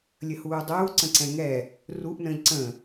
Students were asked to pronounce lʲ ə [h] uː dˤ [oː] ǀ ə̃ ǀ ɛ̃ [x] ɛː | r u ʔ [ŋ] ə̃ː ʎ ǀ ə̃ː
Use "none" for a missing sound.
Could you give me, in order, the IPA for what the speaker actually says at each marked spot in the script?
h, uː, ŋ, n

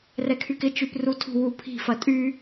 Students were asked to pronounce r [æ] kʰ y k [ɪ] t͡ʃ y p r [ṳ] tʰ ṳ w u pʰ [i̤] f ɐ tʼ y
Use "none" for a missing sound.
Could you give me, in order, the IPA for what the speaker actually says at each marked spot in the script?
ɛ, ɪ, u, i̤

